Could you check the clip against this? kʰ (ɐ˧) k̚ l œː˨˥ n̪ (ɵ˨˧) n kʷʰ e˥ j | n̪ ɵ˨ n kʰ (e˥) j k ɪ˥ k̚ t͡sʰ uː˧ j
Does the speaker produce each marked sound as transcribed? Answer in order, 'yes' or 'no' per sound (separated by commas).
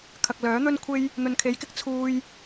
no, no, no